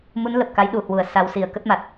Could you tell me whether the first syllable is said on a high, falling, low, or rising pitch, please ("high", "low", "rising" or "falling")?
rising